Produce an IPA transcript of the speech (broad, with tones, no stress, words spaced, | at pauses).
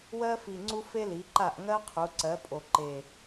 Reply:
wɜ˥fi˨˩ŋ͡ǀu˥ fe˥li˩˥ǃa˥˩ʔ ŋɜ˥ qʰu˩˥ ǀɜ˩˥pʼo˨˩ǃe˨˩